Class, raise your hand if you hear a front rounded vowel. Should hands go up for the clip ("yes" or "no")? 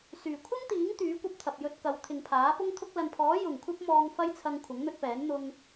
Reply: yes